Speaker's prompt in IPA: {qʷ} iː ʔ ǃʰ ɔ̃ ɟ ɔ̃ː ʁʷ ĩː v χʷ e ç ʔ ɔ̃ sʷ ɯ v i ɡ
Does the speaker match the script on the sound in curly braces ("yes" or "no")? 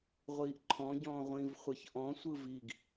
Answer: no